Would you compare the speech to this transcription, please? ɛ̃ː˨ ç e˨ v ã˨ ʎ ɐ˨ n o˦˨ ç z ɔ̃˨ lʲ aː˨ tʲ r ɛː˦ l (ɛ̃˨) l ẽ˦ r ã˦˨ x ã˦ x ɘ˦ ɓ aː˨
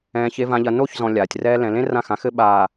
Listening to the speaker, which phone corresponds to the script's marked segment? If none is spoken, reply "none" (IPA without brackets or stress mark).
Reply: ɛ̃˨